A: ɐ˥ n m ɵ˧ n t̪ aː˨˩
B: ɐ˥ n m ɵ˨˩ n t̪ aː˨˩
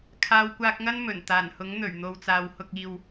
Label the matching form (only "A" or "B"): B